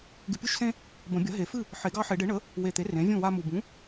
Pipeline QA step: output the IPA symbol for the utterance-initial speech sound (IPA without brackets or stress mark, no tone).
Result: ɡ